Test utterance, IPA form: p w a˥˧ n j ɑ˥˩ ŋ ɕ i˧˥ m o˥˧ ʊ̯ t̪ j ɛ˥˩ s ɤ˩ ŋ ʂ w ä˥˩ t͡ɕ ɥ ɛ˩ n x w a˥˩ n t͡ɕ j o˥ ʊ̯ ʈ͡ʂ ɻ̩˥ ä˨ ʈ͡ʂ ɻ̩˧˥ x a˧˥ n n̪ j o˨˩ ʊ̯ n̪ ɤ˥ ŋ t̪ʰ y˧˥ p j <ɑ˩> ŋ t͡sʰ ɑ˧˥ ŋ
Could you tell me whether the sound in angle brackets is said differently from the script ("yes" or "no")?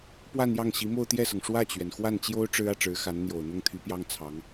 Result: yes